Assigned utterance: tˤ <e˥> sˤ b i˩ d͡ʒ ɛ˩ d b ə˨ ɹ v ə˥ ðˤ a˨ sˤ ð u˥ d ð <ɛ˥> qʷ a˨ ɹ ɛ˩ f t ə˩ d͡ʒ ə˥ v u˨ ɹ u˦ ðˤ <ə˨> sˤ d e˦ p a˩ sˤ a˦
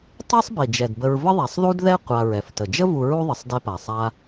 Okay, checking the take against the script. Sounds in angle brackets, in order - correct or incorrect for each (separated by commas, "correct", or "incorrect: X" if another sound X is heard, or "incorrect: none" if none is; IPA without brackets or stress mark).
correct, correct, correct